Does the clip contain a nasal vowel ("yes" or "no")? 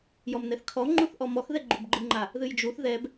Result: no